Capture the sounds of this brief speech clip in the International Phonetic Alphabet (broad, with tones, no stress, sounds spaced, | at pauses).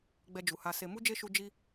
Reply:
ɡ͡b ɛ˧ d͡ʒ u˨ h a˧ s e˧ m u˦ d͡ʒ e˦ ʃ u˧ d͡ʒ i˦